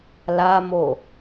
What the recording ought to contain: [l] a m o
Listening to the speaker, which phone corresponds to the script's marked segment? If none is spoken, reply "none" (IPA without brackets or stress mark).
l